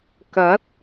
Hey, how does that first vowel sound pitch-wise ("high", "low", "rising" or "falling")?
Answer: rising